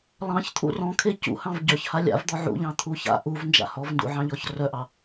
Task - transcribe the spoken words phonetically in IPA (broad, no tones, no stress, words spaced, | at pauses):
lˠɑ̃çt̪ʰṵ rɔ̃kʰe cṵhɑ̃v ɟœçha lʲa̰vd̪ɔ ʕṵʎɑ̃t̪ʰu ça̰ ʔuvnd͡ʒa̰ hɔvndṵʕɑ̃ʎɔç rœʔɑ